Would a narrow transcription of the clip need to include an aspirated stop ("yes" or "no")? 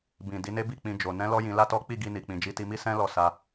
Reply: no